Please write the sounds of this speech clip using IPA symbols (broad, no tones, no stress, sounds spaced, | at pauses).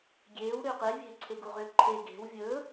ɡʲ eː w ɾ ʏː q e vʲ e̤ ǀʰ e ɡ u ʁ ʏː ǃʰ e ɡ e̤ w vʲ ɵː